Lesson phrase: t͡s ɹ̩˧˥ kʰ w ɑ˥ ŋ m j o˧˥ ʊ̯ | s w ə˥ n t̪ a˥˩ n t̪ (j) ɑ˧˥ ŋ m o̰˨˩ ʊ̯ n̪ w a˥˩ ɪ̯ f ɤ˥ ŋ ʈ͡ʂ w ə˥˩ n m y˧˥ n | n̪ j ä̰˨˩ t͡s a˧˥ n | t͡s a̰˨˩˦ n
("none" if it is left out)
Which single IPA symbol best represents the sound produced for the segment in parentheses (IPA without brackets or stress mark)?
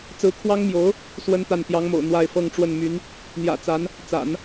j